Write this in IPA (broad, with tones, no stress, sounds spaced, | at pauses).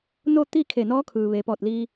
n o˥˨ t̪ i˥˨ kʰ e˧˩ n ɔː˧˥ kʰ ɯː˩ ʋ e˩˧ p ɔː˧˩ t̚ l iː˧